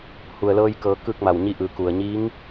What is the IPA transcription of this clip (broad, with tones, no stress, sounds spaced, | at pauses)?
h u˩ ə̯ l ɤː˧ j k ɤː˩˧ k ɯː˥˨ k̚ m a˧˩ w ɲ i˥˨ ʔ ɯː˧˩ k u˩ ə̯ ɲ iː˧˥ ŋ